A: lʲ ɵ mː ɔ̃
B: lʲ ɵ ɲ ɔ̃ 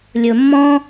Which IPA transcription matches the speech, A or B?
A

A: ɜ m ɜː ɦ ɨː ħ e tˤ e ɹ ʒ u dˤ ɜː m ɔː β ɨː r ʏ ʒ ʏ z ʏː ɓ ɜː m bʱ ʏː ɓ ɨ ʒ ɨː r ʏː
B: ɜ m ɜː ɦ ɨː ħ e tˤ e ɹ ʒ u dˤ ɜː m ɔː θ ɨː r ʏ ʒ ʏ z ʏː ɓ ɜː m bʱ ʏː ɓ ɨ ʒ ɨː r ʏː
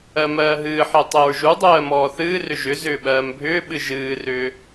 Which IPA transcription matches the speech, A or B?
B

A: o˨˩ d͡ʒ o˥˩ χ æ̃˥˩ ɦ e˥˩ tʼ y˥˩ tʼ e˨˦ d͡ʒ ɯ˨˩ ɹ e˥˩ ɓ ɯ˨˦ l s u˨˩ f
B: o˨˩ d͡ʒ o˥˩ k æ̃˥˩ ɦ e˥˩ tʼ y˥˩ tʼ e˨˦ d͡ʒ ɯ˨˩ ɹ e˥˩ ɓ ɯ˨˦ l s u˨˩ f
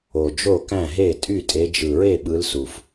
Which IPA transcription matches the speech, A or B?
B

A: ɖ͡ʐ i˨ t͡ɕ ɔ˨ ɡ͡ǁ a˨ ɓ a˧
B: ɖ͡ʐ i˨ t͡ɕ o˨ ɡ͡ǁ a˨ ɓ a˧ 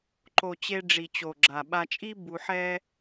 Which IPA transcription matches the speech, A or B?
B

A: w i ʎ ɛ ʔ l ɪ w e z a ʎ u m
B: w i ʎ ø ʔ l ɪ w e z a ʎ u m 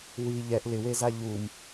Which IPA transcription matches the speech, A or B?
A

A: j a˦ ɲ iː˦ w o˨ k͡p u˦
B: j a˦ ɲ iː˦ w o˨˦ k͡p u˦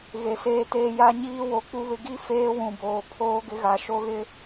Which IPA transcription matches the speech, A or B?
B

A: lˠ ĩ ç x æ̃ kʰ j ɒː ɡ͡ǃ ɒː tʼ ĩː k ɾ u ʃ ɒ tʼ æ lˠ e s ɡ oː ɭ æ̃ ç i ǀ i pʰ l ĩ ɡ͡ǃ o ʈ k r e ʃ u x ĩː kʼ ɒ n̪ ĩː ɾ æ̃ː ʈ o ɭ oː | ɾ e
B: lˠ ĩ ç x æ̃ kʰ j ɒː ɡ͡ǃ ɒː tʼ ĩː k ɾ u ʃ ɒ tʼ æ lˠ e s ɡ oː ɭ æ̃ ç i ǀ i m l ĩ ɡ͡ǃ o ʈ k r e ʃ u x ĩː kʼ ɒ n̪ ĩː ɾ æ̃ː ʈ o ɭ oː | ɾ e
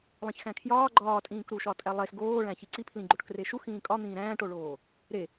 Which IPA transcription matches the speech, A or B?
A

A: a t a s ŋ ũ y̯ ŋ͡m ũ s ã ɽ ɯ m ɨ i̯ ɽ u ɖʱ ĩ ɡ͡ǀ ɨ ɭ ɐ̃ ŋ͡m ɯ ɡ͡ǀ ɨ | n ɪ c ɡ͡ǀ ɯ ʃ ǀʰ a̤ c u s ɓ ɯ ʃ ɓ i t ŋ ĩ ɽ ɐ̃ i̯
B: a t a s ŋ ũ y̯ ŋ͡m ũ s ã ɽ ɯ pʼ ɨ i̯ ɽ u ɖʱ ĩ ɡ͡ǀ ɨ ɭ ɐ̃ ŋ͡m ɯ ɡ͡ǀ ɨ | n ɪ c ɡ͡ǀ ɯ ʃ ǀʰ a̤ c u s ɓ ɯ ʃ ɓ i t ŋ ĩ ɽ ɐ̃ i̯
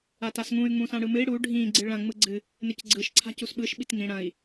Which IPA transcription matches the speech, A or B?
A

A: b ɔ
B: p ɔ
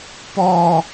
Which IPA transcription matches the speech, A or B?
B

